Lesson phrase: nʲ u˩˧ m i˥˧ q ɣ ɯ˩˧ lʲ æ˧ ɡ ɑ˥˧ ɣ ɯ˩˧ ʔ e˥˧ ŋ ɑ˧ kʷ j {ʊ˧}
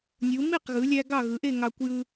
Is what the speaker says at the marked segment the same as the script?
no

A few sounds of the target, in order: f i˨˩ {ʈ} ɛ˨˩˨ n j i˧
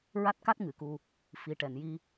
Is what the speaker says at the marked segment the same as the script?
yes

